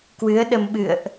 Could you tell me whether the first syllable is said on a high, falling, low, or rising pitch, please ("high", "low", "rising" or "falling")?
rising